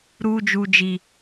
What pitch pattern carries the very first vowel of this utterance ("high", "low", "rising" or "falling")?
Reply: high